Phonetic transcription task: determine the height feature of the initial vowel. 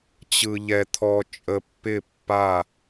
high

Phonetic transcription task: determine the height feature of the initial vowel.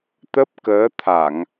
mid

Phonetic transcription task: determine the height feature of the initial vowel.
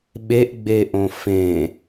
mid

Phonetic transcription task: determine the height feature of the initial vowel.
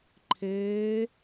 mid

